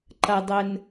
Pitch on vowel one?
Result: low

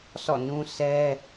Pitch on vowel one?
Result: falling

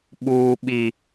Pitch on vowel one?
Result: high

